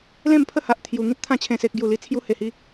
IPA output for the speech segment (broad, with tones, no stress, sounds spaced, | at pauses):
l ẽ˥˧ m pʰ ə˥˧ h a˨ ʔ t̪ʰ j u˨˩ ŋ ĩ˦ t̚ t̪ʰ ã˧ t͡ɕʰ ẽ˨˩ s e˨ k̚ ɡ j u˨˩ l i˧ t͡sʰ j u˧ h e˨˩ h i˧